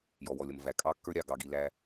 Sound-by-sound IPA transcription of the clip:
j ɔ˨ w ɔ˨ lʲ ʌ˨ m v æ˨ kʼ ɑ˦ kː ə˞˦ ɾʲ ɑ˨ ɡ ɑ˨ ɡ i˨ l æ˦

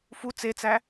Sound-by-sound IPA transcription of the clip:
f u t͡s e t͡s æ

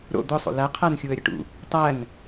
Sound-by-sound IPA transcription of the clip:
ɾ o̰ d̪ ʊ sˤ o̰ l æ qʰ æ n xʲ u ə̯ ɾʲ ɐ ʈ ṵ | tˤ æ n

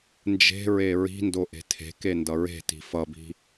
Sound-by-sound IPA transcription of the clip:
n d͡ʒ e̤ ɹ e ɹ i̤ n d o ʔ e̤ tʰ e̤ k e n d ʌ ɹ e̤ t i̤ f ʌ b i̤

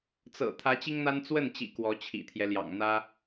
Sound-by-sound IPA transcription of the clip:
t͡s ɤ̰˨˩ t̪ʰ ä˧˥ t͡ɕ i˥ ŋ n̪ a˥ n t͡s w ə˥˩ n t͡ɕ ḭ˨˩ k w ɔ˧˥ t͡ɕʰ ḭ˨˩ t̪ʰ j ɛ˦ l j ɑ̰˨˩ ŋ n̪ ä˥

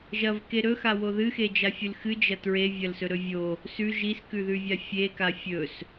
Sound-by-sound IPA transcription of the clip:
ʒ ɐ v k e ɾ ɵ x a w o ð ɨ x e d͡ʒ a fʲ ɨ l x ɨ d͡ʒ ɐ t ɹ e vʲ ɐ l s ɵ ɾ ɵ vʲ o | s ʉ ʒ i s k ʉ ð ʉ vʲ a fʲ e k a fʲ ɵ s

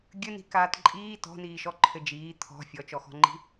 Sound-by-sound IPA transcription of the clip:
ɡʲ ɘ n i̤ k aː t ǃʼ iː t ɔ̤ n iː ʃ ɔ ǃʰ ɘ d͡ʒ iː t̪ʰ ɔ̤ fʲ ɔ t͡ʃ ɔ x ɔ̤ ŋ͡ǃ i̤

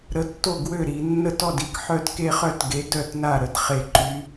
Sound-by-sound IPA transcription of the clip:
ɾ ə˨˥ tː o˥˩ ɡ w ø˥˩ ɾ i˧˩˧ nː ə˦ t ɔ˥˩ d i˥˩ k ħ œ˦ d k e˦ χ œ˥˩ t ɡ e˨˥ d œ˥˩ t n a˥˩ ɾ ə˨˥ d χ e˧˩˧ ǃ y˨˥

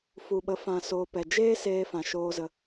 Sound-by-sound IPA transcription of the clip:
f u˨ ɓ ə˨˦ f ã˧ s oː˧ p ɛ˨ d͡ʒ eː˦ s eː˧ f ã˨ ʃ oː˧ z ə˧

